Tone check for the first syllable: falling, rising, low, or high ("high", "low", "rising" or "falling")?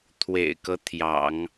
low